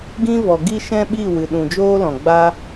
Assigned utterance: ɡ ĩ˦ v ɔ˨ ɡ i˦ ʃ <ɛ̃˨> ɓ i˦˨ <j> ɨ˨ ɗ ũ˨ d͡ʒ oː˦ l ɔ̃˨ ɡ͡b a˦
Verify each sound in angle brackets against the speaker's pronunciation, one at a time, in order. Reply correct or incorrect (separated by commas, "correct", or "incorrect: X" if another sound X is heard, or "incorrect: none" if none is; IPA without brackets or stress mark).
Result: incorrect: ɛ̃˦, incorrect: w